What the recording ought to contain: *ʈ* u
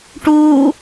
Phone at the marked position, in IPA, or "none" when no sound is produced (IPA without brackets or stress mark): ʈ